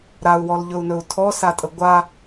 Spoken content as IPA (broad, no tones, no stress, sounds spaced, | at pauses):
ɾ a u̯ w ɔ l ʎ ɵ u̯ n ɵ u̯ tʰ ɔ s a tʼ ə ɡʷ a